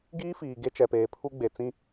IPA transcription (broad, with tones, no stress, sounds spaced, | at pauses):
ɡ iː˦ f iː˨ ɡ e˦ t͡ʃ ɛ˨ p eː˨ pʰ u˦ ɡ͡b e˨ t͡s ĩ˦